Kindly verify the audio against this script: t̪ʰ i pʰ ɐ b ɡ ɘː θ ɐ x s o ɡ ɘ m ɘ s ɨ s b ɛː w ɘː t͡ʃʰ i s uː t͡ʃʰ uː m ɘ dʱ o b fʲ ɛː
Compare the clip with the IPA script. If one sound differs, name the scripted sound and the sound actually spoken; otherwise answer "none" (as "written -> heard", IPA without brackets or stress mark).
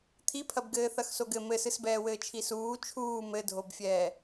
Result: none